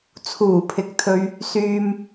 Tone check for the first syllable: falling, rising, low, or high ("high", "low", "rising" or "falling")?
low